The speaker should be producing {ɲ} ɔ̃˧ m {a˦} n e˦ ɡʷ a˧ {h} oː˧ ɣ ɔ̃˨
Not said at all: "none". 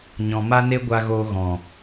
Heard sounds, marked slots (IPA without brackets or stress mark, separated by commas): ɲ, a˦, ɣ